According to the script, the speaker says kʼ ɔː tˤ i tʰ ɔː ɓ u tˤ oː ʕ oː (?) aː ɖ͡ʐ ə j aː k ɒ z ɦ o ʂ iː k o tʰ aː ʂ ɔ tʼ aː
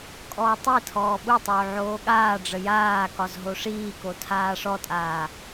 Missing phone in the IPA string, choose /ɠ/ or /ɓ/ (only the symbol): ɠ